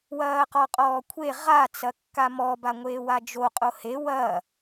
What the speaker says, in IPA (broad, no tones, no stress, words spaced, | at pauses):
wɐːqɔqʼɔːkʷʰe ʁa t͡sɐkːamɔ baŋʷeːwad͡ʒo qʼohe wɐː